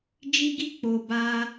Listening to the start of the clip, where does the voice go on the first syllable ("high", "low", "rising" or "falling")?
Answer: high